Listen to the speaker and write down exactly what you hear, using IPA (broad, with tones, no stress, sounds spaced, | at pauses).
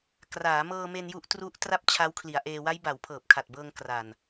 k r aː˩˦ m ɤː˧ m e˧ n j u˦˥ ʔ t r u˦˥ ʔ t r a˥˩ p̚ t͡ɕʰ a˦˥ w kʰ l i˩˦ a̯ ʔ eː˧ w a˦˥ j b a˩˦ w pʰ ɤː˨˩ p̚ kʰ a˨˩ t̚ b ɤː˧ ŋ k r a˨˩ n